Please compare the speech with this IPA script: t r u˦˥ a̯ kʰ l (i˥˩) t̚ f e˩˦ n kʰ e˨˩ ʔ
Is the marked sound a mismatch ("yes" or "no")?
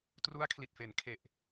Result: yes